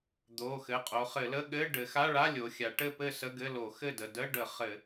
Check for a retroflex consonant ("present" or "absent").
present